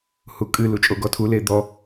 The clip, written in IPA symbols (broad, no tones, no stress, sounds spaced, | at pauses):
h u kʼ ɨ l u t͡ʃʼ o ɡ ɔ tʰ u l e d̪ ɔ